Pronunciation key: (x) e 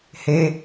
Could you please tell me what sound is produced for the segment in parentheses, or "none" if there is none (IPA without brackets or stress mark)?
h